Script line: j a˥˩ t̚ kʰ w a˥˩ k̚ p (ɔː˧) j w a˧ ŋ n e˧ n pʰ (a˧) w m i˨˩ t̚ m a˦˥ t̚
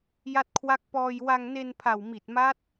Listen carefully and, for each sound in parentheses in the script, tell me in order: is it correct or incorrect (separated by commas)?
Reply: correct, incorrect